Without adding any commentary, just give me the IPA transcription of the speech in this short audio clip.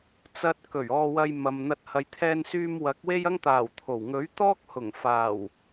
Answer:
t͡sɐ˧t̚kɵ˨˩ɥ ɔː˧wɐ˧j mɐ˨mn̪ɐ˧t̚ hɐ˨˧jt̪ʰɛː˧nsyː˧m wɐ˨˥k̚we˥jɐ˥ŋt̪aː˨˩w t̪ʰo˨˩w ŋɵ˨˥ɥt̪ɔː˥k̚ hʊ˨˩ŋfaː˨˩w

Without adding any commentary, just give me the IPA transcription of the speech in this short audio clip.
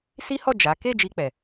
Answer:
si˦hɔ˦˨ d͡ʒa˨˦ ke˦˨ d͡ʒi˧k͡pɛ˨

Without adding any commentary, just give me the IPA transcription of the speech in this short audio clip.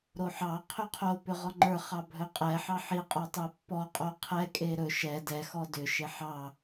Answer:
ɾoħɑ qʰʏqʰo pʏʁɔŋ͡ǃə˞ χɑbʱɵqʼɛ ħɑħi qʼə˞tˤepːɔ qʼoqʰɛ kʼeɾɵ ʃɛ dɛ xɔdʏ ʃeħɑ

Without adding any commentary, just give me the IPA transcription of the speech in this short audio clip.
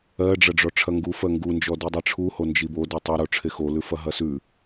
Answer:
ɜɖ͡ʐɐɖ͡ʐɔ ʈ͡ʂʰɐŋɡu fɜŋɡund͡ʒɔ didˤeʈ͡ʂʰu hond͡ʒibo dɜtˤɐɾo ʈ͡ʂʰexolʉfɐ ɦɐsʉ

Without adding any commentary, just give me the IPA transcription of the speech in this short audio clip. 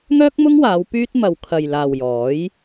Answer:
ŋœː˥k̚mʊ˥ŋwaː˨˧w pyː˥t̚ mɐ˨w kʰɐ˨jlaː˨w jɔː˨˥j

